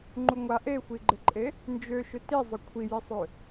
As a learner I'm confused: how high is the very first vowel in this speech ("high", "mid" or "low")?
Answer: high